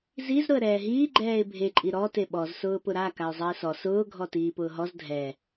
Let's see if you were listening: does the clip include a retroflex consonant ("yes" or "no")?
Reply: no